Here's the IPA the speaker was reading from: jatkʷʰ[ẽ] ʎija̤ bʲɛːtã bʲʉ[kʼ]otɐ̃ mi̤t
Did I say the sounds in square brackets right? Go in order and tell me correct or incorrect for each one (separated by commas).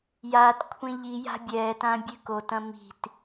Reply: correct, incorrect